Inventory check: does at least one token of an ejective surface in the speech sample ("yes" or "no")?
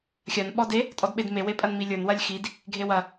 yes